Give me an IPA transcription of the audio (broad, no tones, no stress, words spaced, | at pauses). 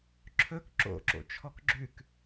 ǁʰɵk ǁo̰ǁo̰ t͡ʃʰɔkɡ͡ǁʉk